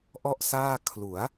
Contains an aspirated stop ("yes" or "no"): yes